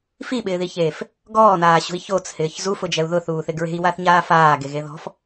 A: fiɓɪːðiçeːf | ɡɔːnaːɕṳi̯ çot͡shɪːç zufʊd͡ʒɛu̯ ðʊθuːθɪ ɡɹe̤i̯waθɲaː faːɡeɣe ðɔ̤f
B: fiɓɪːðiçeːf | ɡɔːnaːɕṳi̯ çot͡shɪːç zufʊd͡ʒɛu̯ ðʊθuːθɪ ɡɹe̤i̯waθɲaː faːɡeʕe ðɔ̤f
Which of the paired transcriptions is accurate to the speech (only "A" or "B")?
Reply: A